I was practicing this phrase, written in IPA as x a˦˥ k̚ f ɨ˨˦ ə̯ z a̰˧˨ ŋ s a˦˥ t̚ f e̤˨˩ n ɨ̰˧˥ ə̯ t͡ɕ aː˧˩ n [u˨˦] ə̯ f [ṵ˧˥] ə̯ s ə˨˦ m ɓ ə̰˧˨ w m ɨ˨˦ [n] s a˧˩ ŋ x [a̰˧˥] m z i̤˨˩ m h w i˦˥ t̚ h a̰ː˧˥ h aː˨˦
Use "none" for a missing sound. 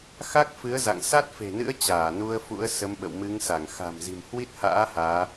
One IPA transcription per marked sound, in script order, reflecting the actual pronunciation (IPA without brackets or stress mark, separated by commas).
u˧, ṵ˧˥, ŋ, a̤˨˩